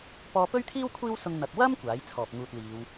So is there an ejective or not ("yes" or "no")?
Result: no